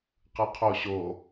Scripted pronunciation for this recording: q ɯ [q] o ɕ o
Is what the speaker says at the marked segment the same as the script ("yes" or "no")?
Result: no